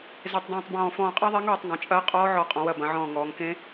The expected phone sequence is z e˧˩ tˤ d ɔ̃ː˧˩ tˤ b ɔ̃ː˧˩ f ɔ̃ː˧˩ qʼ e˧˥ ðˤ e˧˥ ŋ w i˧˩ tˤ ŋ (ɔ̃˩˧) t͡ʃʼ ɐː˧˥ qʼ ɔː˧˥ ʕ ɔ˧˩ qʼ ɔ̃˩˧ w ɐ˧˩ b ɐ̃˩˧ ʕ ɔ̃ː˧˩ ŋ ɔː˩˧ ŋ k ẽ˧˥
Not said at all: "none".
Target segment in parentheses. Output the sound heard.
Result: ɔ̃˩˧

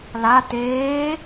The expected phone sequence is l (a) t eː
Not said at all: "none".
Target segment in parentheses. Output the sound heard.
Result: a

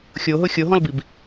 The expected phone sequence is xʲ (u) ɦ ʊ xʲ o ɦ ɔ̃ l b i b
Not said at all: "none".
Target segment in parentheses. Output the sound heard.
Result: o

